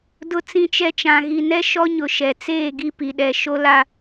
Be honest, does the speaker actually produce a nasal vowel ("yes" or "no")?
yes